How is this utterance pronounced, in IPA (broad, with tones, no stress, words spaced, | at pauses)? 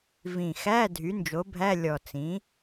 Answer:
vĩ˨˩xæ˧˥˧ dʱy˩˥nd͡ʒo˩˥bʱæ˧˥˧ lʲɔ˨˩t͡sĩ˩˥